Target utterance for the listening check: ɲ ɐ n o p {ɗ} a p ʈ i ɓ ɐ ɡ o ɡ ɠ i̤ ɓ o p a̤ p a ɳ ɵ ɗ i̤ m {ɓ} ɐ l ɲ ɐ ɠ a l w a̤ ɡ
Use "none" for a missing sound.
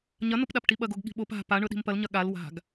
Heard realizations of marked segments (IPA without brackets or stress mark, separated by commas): ɗ, p